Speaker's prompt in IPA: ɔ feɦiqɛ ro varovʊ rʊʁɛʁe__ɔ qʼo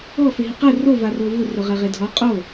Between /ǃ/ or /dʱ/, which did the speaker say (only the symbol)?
dʱ